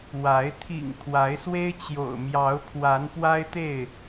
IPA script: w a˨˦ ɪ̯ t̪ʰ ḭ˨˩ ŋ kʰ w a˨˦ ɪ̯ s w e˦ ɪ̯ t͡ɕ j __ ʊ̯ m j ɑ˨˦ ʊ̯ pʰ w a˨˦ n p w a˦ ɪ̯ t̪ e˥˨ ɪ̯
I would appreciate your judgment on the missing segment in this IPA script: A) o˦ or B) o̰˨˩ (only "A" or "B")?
B